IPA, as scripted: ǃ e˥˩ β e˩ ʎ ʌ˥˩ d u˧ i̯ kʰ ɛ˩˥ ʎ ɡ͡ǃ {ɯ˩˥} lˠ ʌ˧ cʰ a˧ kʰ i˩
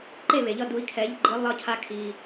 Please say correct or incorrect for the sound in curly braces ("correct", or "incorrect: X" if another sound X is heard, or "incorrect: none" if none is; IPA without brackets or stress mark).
correct